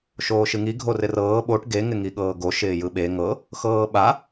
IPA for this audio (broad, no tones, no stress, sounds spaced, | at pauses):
ʃ oː ʃ ɨ ŋ i ɡʱ o r ɪ r ɤː ɓ o ʈ ɡ e ŋ ɪ ŋ i ɠ ɤː ɡ o ʃ ɪː j ɯ ɓ e ŋ ɤ | x ɤː ɓ a